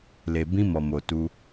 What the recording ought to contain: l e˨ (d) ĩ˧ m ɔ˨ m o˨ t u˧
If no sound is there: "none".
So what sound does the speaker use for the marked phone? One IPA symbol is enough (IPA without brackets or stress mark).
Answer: b